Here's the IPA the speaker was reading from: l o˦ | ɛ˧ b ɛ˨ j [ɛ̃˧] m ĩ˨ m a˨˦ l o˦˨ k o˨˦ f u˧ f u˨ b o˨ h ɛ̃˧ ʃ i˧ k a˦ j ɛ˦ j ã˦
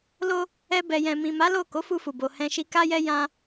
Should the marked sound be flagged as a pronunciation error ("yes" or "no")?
yes